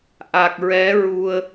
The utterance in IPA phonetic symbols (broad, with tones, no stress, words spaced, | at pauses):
ʔa˨˩k̚ɹɛ˧˥ɹu˧ə̯